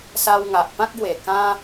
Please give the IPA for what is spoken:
s a˧ w ŋ a˨ ʔ p ã˦ k̚ ɡ w e˨˩ k ã˦

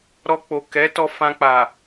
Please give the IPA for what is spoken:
ɾ ɔ˧ k͡p o˨ k ɛ˨˦ t ɔ˧ f ã˧ k͡p a˨

